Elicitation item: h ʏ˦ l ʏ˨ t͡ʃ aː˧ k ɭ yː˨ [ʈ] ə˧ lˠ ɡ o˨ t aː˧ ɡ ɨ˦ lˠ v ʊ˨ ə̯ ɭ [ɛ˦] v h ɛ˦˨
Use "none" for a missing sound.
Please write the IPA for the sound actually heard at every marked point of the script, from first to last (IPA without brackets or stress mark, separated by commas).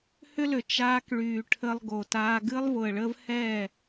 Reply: ʈʰ, ə˦